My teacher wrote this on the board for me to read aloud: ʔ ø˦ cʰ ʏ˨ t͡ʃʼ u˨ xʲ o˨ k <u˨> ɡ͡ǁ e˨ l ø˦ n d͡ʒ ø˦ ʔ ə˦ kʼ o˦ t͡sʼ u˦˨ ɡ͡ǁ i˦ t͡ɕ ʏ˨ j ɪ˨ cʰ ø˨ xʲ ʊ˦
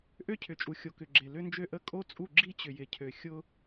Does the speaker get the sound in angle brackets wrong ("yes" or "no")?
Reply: yes